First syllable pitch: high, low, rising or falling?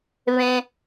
high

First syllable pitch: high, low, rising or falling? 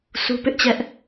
high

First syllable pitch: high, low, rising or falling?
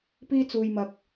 high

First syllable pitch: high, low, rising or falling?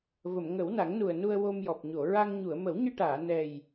low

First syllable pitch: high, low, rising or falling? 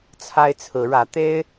high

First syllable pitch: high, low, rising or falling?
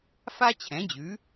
high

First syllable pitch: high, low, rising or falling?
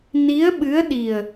rising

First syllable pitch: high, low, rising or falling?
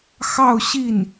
falling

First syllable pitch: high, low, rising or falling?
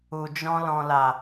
low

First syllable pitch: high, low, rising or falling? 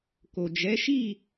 low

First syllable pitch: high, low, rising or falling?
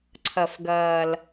low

